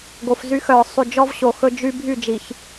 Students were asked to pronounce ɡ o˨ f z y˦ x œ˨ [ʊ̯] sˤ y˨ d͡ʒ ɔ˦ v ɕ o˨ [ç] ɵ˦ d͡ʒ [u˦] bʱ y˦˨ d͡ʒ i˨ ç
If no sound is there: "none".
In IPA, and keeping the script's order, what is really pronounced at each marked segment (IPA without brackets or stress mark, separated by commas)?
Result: ʊ̯, x, y˦